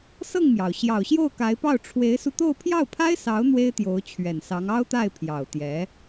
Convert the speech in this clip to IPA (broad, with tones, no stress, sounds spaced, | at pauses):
s ɤ˥˩ ŋ m j ɑ˩ ʊ̯ ɕ j ɑ˨˩ ʊ̯ ɕ j o˥˩ ʊ̯ k a˧˥ ɪ̯ p ɑ˥˩ ʊ̯ ʈ͡ʂʰ w e˧˥ ɪ̯ s u˧ t̪ o˥˧ ʊ̯ pʰ j ɑ˥˩ ʊ̯ pʰ a˥ ɪ̯ s ɑ˧˥ ʊ̯ n̪ w e˥ ɪ̯ t̪ j o˧˥ ʊ̯ t͡ɕʰ ɥ ɛ˨˩ n s ɑ˧˥ ŋ ɑ˥ ʊ̯ t̪ a˥˩ ɪ̯ pʰ j ɑ˨˩ ʊ̯ t̪ j ɛ˧˥